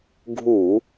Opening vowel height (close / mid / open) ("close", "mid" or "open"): close